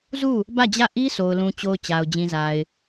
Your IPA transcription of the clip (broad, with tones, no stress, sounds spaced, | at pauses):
z u˦˨ | b ä˦˨ d͡ʑ ä˦˨ ʔ i˦ s o˨ ʊ̯ l ũ˨ t͡ɕ o˨ ʊ̯ t͡ɕ a˨ ʊ̯ d͡ʑ ĩ˨ z a˨ ɪ̯